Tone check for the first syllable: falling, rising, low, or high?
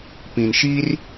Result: low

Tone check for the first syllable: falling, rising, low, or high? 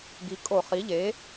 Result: rising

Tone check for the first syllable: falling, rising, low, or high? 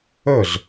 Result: falling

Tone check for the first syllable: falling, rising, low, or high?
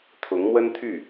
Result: rising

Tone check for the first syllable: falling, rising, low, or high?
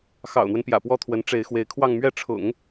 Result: low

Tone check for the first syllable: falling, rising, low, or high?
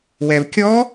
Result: low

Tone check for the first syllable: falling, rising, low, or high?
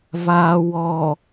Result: low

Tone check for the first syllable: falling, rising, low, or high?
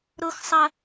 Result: high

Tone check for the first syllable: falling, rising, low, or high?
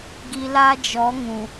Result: low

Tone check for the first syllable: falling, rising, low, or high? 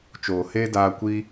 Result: low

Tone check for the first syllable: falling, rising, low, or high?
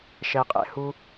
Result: low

